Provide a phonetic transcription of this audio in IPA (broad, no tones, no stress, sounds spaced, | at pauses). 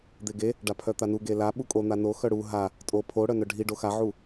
d̪ e ɡ e | ɖ a pʰ œ t̪ a n u ɡ e l a ɓ u kʼ o n̪ a n o x œ ɽ u ɦ a | tʼ o pʰ o ɽ œ n œ ɖʱ i ɖ o x a ʕ u